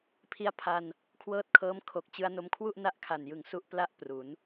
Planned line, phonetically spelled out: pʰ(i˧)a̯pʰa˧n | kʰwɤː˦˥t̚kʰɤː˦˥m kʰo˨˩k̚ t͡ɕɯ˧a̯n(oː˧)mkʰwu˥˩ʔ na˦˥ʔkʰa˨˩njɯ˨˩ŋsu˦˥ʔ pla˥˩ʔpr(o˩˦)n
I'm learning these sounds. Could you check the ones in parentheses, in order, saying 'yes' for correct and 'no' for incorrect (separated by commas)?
yes, no, no